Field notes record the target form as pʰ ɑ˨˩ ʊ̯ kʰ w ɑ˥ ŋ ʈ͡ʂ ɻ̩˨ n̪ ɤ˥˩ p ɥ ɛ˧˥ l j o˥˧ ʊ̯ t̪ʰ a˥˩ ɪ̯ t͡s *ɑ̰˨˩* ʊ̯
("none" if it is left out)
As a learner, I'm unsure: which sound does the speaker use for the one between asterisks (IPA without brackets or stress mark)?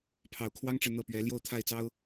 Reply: ɑ˥